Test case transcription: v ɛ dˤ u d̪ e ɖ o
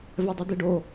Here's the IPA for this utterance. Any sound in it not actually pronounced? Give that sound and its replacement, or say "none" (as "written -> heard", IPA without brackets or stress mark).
none